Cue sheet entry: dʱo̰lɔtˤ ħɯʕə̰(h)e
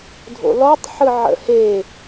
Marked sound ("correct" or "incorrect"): correct